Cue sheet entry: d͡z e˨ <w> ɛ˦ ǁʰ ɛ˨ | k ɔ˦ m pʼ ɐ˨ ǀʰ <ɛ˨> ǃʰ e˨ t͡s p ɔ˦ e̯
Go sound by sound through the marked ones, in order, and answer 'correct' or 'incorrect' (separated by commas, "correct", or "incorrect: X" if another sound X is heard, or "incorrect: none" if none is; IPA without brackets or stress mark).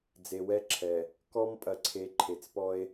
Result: correct, incorrect: e˨